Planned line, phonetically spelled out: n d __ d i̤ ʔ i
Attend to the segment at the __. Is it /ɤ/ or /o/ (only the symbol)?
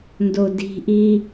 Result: o